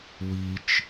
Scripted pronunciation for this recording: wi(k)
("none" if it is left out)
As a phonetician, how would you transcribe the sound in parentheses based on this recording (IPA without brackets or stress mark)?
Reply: t͡ʃ